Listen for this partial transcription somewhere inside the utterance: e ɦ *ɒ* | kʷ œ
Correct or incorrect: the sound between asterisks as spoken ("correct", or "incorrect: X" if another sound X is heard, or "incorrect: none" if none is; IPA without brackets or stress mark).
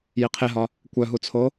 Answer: correct